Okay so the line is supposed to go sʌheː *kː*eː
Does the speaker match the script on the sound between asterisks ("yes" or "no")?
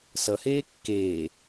yes